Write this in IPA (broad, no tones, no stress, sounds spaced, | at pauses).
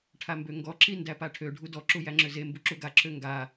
ʈʰ a m b ø ŋ ɡ ɔ ǁ i n d æ p a ʈʰ ø ɖʱ u d ɔ ǁ u j æ ŋ͡ǁ ø z e m b u ǁ u ɡ a ǁʰ ø ŋ ɡ a